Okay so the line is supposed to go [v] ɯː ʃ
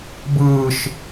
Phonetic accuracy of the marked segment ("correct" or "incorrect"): incorrect